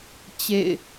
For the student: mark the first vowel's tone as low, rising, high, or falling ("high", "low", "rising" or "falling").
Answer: falling